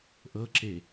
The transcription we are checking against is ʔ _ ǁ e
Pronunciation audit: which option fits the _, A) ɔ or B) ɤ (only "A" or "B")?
B